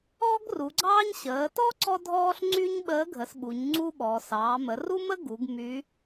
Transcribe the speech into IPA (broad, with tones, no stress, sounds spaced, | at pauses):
ɔː˥ ɡ r u˩˧ ɡ͡ǀ ɑː˥ ɲ ɕ əː˩˧ t ɔ˥ ǀ ɔ˥ dʱ ɔː˥ ɬ ŋ͡ǀ y˥ ɲ ɓ əː˧˥ ɡʱ ə˩˧ s ɓ u˩˧ ɲ ŋ͡ǀ u˥ ɓ ɔ˩˧ s ɑː˩˧ m ə˩˧ r u˥ m ə˥ ɡ u˩˧ ɡ m y˧˥